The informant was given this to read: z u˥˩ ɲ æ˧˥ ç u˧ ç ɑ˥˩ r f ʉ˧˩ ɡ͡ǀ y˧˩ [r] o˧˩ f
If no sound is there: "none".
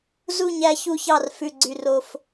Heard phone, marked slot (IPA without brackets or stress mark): r